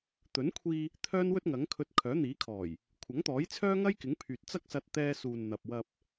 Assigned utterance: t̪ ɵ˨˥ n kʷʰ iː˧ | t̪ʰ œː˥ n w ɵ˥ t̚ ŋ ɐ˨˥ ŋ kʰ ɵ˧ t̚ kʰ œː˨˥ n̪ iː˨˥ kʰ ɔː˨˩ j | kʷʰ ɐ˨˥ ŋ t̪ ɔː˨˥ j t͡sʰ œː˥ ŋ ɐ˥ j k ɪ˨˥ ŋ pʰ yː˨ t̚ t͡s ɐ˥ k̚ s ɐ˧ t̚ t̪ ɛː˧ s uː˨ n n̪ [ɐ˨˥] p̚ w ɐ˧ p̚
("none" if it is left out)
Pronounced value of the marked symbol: ɐ˨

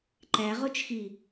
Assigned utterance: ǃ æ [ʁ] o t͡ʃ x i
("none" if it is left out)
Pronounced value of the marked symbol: ʁ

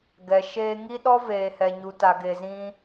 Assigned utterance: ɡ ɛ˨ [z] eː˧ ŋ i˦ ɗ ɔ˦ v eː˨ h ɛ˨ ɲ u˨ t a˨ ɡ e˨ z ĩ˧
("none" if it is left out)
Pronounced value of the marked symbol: ʃ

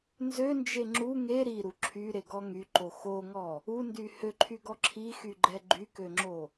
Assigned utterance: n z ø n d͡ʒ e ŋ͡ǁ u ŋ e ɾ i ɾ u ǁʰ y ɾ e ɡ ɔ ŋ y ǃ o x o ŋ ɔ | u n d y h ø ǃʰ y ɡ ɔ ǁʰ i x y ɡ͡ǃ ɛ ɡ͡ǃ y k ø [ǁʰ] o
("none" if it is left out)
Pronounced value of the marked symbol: ŋ͡ǁ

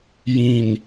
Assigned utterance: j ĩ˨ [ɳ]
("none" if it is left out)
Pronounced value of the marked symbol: n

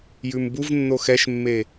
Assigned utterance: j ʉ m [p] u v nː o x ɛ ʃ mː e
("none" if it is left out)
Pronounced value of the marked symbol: b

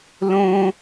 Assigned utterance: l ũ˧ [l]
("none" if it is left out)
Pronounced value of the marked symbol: none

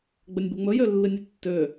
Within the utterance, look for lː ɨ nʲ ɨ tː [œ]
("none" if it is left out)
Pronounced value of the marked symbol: ø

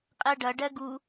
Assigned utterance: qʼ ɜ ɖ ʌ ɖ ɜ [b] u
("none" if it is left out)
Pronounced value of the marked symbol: ɡ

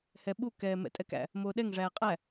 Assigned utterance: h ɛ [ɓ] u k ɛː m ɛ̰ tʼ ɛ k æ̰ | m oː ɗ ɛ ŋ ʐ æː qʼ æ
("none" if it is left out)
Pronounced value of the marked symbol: ɓ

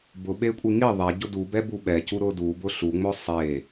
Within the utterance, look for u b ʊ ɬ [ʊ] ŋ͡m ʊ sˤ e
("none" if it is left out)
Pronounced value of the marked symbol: u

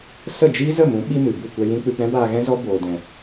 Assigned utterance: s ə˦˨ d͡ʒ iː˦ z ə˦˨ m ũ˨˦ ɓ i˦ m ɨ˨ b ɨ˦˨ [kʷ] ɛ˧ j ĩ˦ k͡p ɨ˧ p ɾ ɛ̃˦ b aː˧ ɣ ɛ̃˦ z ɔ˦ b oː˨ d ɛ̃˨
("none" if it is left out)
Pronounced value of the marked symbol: kʷ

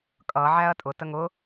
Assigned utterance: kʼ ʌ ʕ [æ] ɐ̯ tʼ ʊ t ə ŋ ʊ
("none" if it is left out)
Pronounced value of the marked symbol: æ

